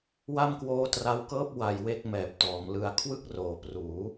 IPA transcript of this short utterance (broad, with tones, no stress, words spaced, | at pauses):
wa˥˩mkwoː˦˥tra˧wkɤː˥˩p̚ wa˧jwe˥˩k̚ mɛː˨˩p̚tɔː˩˦mlɯ˦˥a̯ kʰwɯ˥˩k̚roː˨˩ pruː˩˦